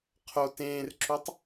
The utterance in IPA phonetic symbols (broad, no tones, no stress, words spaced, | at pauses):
qʰo tẽːrǁutˤ